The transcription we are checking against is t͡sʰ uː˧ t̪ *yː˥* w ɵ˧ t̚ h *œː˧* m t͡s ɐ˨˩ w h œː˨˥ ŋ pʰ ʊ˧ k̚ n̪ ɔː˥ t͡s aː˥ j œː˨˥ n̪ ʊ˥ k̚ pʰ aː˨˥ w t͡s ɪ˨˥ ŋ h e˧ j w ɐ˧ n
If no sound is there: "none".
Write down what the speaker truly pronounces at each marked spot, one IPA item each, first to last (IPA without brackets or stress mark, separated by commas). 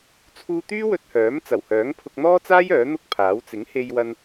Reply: yː˥, œː˨˥